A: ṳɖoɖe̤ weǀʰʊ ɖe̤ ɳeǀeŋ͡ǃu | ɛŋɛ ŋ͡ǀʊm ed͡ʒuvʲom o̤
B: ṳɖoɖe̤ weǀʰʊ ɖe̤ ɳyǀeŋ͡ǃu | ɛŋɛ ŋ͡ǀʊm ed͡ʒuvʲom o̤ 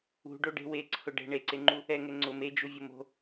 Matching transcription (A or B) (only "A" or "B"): A